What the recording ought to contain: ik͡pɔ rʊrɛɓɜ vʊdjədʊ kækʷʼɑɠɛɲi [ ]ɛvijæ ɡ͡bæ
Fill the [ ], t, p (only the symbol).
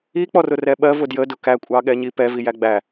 p